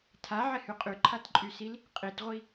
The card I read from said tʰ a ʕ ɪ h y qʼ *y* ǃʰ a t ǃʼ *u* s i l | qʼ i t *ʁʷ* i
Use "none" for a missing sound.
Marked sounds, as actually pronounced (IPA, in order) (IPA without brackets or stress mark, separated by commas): y, y, ʁʷ